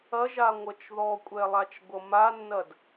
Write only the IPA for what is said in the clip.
ɐ ʒ a ŋʷ ʌ t͡ʃ ð ɔ kʷʼ ɛ lˠ a t͡ʃ ɡʷ ʌ m a nː ɐ d

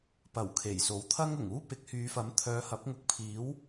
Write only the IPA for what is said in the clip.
p ɐ˨˩ w kʰ e˨˩ j s o˨˥ w t̪ʰ ɐ˥ ŋ ʊ˨˩ ŋ uː˥ p ɪ˨˥ k̚ h yː˨˧ f ɐ˨˥ m t̪ʰ œː˨˧ h ɐ˨˥ p̚ ŋ ʊ˨˥ k̚ pʰ iː˨˥ w

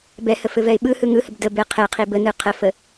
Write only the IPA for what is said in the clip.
b ɛ h ə f ɘ v ɛ ɪ̯ ɓ ɯ h ɯ ŋ ɯ h ə b d ə b ɘ qʰ ɛ qʰ i b ə n ɯ qʰ ə f ə

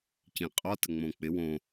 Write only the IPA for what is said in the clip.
c ĩ qʼ ɔ t ə ŋ͡m õ k͡p ɪ w õ

